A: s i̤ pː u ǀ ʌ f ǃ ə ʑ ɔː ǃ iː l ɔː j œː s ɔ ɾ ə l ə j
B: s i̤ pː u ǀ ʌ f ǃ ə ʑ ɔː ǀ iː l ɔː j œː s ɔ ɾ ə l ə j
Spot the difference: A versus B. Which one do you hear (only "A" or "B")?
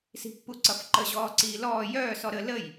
B